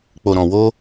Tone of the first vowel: low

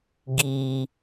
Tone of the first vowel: low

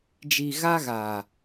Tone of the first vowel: low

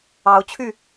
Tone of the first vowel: rising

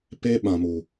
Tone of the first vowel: high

